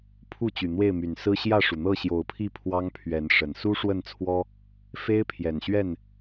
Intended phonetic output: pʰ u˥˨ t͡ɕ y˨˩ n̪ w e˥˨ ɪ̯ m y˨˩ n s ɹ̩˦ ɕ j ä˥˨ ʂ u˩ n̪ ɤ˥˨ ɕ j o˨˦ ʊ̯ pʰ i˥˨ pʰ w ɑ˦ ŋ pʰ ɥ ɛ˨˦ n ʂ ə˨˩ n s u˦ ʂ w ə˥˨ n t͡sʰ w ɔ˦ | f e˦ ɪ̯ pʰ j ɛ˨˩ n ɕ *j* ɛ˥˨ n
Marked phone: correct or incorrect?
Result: incorrect